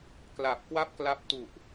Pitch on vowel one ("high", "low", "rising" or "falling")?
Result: low